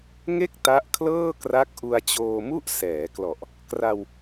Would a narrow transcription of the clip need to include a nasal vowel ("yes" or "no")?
no